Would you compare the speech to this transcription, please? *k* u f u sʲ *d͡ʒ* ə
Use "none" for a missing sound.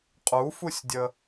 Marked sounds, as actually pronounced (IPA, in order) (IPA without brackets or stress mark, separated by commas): qʼ, dʲ